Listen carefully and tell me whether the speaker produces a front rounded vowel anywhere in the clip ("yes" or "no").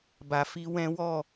no